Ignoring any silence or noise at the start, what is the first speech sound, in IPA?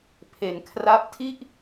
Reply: pʰ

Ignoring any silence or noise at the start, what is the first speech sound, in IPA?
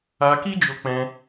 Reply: a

